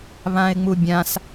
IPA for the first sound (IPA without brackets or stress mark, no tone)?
β